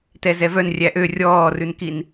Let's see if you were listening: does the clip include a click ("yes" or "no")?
no